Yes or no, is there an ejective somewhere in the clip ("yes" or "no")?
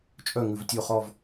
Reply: yes